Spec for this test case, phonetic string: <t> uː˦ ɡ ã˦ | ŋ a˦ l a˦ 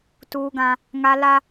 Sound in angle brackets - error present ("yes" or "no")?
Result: no